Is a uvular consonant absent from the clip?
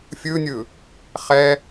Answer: no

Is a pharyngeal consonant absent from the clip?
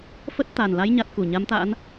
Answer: yes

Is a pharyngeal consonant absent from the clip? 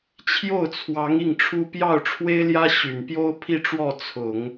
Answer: yes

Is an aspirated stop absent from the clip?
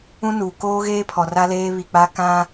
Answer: no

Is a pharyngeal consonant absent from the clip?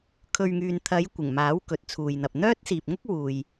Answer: yes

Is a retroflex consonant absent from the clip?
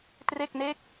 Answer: yes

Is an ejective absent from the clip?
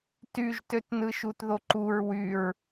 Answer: yes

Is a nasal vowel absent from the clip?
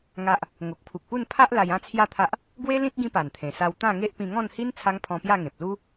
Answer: no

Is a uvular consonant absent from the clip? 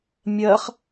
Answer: no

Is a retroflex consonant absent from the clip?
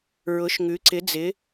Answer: yes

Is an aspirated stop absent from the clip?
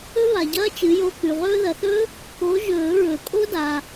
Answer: yes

